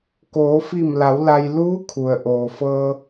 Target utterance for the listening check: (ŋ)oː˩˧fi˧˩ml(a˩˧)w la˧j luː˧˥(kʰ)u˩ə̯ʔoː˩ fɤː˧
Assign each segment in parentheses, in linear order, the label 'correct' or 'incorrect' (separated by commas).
incorrect, correct, correct